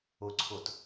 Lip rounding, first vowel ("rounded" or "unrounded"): rounded